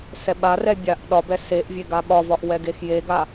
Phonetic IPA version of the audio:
sɛɓarɛ bʲaʔ ɗɒbɛ seʔvʲe ɡaɓɒvɒʔ wɛɡexjeɡa

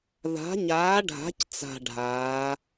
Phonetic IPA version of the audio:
ða̤˩˧ɲaː˩˧ɖʱa̤˩˧c t͡sa̤˨˩ɖʱaː˩˧

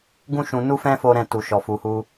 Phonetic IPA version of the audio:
ɡũ˦ʃũ˧ nu˦fɛ̃˦fo˧ ɾɛ̃˧tu˨ ʃɔ˨fu˨hu˧

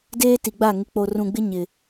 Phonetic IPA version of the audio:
deː˦ti˨ɡ͡ba˦˨ ŋɪ˨k͡po˨rũ˨ɡ͡bɪ˦ ɲɪ˨

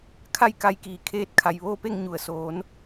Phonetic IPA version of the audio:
kʰa˥˨jka˧jkiː˩ kʰeː˧t̚ kʰa˩jʋoː˥˨pe˥˨ŋ ɲu˩ə̯soː˩˧n

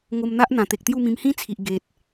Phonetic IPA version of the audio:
ŋo˧mn̪a˦ʔ n̪ã˨˩t̪e˨k̚t̪ju˥˧mĩ˧m hĩ˦t͡sʰi˨ʔ ɡe˨t̚

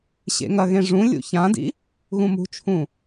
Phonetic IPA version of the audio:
ɕḛŋɐɣẽ ʐũ lʲṵçãdḭ | ɣũmṳt͡ʃʰũ

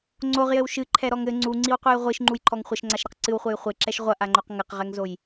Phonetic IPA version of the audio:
ŋ͡ǀoʁjɘw ʃɨǃʰɛɾɔŋ ɘ ŋ͡ǀuŋ͡ǀiwqʷɨj ʁʷiʃŋ͡ǃujǃʰɔŋ χʷɘʃŋ͡ǀaʃɾɛq ǀɨwχʷɘj χʷeǁɛʃ ʁʷɐʔaŋ͡ǃoq ŋɘqʁɛŋzoj

